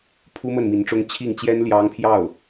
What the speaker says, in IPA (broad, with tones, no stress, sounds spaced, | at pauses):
pʰ u˥ m ə˥˩ n m i˧˥ n ʈ͡ʂ ʊ˥ ŋ t͡ɕʰ i˥˩ ŋ t͡ɕ j ɛ˥ n l j ɑ˥ ŋ pʰ j ɑ˥˩ ʊ̯